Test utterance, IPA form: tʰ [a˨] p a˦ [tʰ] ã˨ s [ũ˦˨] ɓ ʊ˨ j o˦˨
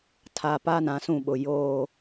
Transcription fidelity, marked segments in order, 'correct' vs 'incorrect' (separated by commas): correct, incorrect, correct